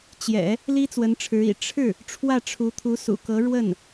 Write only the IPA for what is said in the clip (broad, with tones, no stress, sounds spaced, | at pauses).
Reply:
t͡ɕ j ɛ̰˨˩˦ | l i˥ t͡s w ə˧˥ n ʈ͡ʂʰ ɻ̩˧˥ ḭ˨˩ ʈ͡ʂʰ ɻ̩˥˩ | ʈ͡ʂʰ w ä˥˩ ʈ͡ʂʰ u˧˥ t̪ʰ u˧˥ s ṵ˨˩ k ɤ˧˥ ɻ w ə˥˩ n